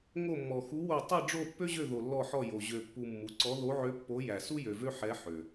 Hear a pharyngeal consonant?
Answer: yes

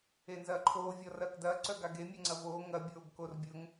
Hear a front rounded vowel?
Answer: yes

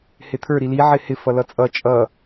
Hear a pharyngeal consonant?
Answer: yes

